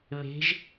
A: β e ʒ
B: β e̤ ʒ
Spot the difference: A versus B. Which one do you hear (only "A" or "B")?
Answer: B